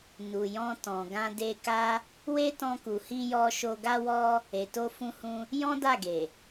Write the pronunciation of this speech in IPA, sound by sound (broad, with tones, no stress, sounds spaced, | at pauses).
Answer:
n u˨ j ɔ̃˧ t ɔ̃˨ ɡ ã˧ d e˧ k a˦ | w e˦ t ɔ̃˧ k u˨ h i˧ j ɔ˧ ʃ o˧ ɡ a˦ w ɔ˦ | e˨ t o˧ f ũ˧ h ũ˧ | j ɔ̃˦ d a˦˨ ɡ e˨